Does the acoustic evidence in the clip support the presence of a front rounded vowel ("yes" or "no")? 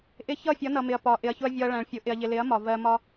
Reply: no